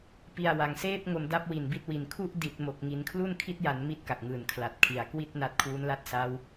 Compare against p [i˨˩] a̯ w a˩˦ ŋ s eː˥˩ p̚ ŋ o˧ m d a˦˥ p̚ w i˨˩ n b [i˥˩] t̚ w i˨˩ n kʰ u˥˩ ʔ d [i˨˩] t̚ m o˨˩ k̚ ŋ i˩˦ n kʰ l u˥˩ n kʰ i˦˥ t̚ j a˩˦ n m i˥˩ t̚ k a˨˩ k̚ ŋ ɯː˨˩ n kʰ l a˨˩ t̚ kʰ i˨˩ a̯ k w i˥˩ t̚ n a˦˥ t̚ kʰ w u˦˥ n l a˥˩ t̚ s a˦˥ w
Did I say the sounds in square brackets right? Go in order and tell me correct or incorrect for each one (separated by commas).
correct, incorrect, correct